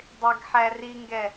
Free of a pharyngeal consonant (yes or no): no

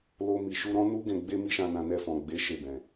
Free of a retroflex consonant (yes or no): yes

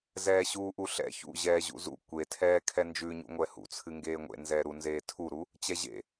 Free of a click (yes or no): yes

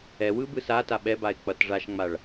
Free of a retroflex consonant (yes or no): no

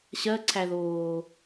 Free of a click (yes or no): no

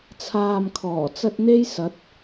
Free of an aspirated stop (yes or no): no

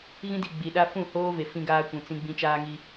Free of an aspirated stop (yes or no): yes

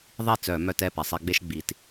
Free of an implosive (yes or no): yes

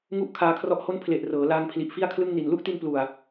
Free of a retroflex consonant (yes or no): yes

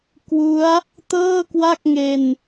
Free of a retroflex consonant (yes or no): yes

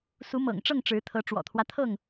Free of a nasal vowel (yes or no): yes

